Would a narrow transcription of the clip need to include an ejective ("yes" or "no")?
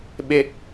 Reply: no